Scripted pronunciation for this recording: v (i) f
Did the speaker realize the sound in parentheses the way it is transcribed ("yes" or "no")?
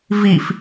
yes